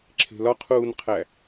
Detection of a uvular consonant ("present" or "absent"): present